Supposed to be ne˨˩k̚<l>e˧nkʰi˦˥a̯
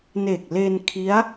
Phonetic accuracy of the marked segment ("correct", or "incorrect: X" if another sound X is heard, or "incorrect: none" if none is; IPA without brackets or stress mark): correct